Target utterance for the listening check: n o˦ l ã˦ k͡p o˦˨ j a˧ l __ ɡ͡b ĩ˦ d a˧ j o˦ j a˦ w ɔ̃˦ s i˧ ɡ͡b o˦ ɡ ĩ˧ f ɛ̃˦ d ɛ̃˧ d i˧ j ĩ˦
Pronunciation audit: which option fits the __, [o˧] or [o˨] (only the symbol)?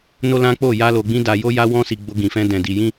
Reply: o˧